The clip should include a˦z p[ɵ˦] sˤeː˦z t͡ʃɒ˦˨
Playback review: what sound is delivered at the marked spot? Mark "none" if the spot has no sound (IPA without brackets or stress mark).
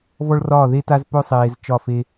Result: ɵ˦